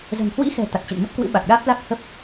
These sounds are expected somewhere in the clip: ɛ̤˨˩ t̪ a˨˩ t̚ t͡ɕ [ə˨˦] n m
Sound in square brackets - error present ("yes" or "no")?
yes